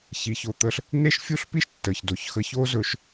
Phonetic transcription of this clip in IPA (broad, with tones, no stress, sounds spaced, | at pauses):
ç i˨ ç o˨ t̪ ə˦ ɬ | n e˦ ʃ fʲ u˦ ɬ p i˦ ʃ tː ə˨ ç d o˨˦ ç x ə˦ ç o˦ z ɵ˨ ʃ